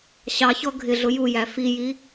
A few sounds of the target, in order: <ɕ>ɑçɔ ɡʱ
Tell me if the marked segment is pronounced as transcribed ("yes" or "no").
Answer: yes